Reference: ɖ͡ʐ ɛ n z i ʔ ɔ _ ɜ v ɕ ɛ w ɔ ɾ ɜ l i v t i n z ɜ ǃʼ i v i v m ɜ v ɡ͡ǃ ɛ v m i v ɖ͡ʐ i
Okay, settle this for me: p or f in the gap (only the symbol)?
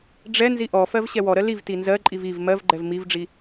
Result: f